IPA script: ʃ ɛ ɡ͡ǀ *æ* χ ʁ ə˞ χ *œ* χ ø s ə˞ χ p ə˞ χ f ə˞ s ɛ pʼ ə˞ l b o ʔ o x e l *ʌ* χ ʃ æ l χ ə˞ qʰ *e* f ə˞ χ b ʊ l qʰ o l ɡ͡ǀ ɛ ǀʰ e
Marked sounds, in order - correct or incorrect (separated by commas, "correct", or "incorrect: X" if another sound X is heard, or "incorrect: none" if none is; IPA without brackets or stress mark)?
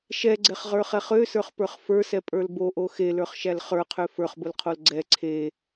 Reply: incorrect: ɛ, incorrect: ɛ, incorrect: ə˞, incorrect: ø